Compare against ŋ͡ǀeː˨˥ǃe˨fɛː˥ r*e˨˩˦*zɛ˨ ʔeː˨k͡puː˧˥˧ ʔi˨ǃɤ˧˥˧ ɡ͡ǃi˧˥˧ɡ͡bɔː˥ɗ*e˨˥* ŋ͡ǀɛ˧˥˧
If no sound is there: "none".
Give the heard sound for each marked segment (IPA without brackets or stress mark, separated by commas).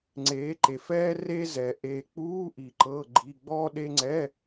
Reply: e˥, e˥